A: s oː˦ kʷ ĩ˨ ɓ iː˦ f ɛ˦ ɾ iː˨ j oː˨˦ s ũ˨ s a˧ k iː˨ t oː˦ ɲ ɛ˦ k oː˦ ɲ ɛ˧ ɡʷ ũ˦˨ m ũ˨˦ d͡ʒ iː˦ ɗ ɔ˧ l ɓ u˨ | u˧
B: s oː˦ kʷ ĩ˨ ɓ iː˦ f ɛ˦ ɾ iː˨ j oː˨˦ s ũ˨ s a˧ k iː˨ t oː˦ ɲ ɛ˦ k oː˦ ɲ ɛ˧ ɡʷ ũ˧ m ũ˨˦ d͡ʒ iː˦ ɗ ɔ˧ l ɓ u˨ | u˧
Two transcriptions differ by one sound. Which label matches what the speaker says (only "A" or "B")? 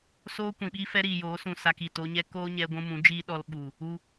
B